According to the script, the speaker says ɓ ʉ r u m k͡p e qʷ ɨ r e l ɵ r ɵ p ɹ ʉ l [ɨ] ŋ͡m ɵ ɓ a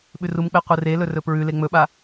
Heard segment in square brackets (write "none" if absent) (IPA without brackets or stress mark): e